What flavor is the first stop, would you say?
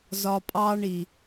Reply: ejective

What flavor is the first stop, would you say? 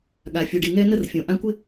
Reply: implosive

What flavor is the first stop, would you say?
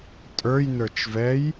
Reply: ejective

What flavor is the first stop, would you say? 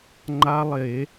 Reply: click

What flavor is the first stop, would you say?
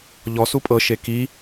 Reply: ejective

